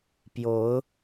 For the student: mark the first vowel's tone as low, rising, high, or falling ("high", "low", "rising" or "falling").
rising